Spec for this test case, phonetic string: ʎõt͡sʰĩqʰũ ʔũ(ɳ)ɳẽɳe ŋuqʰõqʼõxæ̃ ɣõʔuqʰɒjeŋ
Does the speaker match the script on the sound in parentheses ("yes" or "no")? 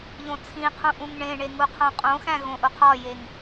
no